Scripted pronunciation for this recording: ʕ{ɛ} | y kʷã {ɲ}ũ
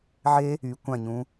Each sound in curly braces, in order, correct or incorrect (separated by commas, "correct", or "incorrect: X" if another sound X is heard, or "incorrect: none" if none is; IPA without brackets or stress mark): incorrect: e, correct